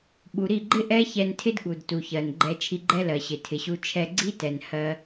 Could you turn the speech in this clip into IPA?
ɓu˨ ɾi˦˨ɡ͡ǃɪ˦ ʔɛ˦çɛ˧ntʰɪ˦dɠu˨d tu˨çɜ˨nɡ͡ǃɛ˧ t͡ʃʰi˧ɡ͡ǃɛ˦lɜ˨ɕɪ˨ tʰɪ˨ɕu˧ t͡ʃʰɛ˧ɡ͡ǀi˦tɛ˨n hɜ˧

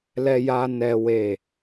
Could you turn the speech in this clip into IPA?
lɛ˦ja˦ nɛ˦we˦˨

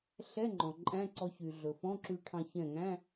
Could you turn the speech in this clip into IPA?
ɬɛ˧˥˧ŋ͡ǃɔ̃˩ ǃʼæ̃˧˥˧ǀɔ˧ çy˩ ɮɵ˩fɔ̃˧˥˧ǁy˧ʈʰɑ̃˧ çɛ̃˧˩ŋæ̃˧˥˧

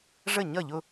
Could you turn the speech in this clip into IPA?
ʐə˥˩ ɲʌ˥˩ʎʊ˥˧

